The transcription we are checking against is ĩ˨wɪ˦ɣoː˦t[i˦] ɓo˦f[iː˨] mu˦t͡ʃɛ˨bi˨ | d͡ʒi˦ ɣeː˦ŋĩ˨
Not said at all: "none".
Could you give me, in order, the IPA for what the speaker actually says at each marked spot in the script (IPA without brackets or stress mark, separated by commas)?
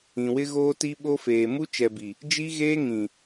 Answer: i˦, eː˨